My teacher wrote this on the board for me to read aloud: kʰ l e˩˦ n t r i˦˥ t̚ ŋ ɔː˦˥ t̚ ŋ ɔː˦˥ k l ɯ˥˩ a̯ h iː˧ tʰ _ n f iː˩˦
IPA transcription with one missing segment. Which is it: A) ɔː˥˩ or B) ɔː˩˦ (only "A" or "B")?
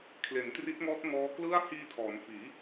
B